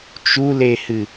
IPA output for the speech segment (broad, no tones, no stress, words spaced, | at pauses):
t͡ʃulehɨ